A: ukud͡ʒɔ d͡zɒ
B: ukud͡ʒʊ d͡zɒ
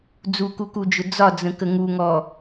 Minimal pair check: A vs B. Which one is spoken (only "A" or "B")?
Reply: B